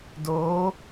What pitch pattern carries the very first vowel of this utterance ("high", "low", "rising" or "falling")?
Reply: rising